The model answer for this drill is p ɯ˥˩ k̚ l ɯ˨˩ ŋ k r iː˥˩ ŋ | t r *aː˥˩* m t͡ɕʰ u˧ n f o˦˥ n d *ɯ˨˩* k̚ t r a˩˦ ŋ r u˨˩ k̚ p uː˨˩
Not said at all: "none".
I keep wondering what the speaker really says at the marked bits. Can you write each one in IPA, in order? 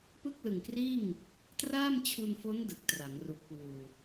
aː˥˩, ɯ˨˩

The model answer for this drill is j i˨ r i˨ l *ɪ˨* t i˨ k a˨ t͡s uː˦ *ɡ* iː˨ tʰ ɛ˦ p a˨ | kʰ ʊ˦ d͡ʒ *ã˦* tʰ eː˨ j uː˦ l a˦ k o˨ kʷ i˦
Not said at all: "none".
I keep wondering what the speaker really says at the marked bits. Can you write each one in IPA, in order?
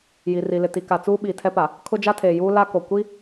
ɪ˨, ɓ, a˦

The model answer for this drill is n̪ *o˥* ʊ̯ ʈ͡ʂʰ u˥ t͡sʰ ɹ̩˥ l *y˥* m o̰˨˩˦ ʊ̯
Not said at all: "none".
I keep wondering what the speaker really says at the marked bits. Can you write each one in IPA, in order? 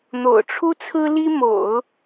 o̰˨˩, i˥

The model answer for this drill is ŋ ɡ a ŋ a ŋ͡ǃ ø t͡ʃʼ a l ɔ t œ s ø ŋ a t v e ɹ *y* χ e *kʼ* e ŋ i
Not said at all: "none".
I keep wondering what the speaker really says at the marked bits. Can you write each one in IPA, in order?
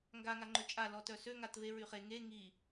y, ŋ

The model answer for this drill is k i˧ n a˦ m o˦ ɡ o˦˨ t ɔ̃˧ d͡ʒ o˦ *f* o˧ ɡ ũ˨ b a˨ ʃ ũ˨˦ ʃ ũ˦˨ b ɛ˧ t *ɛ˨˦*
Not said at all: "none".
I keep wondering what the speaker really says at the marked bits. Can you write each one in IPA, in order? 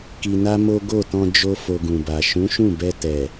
f, ɛ˨

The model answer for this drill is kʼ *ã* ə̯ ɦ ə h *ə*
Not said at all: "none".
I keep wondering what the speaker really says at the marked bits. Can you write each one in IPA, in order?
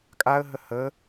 a, ə

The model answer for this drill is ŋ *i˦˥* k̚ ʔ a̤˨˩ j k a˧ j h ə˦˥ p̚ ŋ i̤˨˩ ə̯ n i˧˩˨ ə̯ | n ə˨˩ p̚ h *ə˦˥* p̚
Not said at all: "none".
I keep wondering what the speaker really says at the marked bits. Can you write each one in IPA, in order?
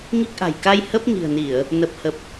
i˦˥, ə˨˩

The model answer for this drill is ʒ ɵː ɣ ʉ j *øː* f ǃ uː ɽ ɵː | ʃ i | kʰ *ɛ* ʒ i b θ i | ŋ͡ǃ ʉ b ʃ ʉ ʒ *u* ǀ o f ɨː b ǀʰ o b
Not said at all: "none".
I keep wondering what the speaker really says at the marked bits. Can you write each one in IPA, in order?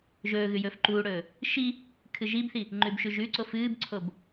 ɵː, ɨ, ʉ

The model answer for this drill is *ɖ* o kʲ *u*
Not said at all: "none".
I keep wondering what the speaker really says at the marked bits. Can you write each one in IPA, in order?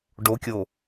ɖ, o

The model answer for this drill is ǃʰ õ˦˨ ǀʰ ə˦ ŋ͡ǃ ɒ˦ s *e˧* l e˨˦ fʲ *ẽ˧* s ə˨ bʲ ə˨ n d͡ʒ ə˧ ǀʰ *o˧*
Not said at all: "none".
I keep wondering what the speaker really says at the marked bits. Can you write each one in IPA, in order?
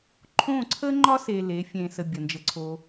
e˧, ẽ˨, o˧

